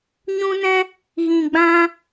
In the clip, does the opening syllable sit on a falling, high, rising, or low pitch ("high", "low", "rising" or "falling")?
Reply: high